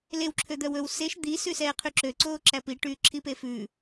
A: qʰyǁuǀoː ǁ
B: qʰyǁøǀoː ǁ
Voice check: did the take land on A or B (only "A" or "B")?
B